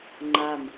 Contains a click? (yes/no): yes